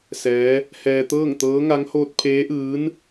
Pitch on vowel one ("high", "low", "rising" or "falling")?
rising